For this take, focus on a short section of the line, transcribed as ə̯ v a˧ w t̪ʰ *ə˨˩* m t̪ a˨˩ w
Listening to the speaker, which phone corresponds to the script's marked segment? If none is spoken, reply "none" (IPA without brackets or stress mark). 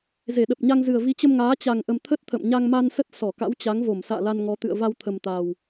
ə˨˩